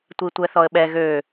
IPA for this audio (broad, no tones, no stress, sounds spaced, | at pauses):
tʷ i tʷ ɛ θ ɔ ə̯ ɓ ɛ ɣ ø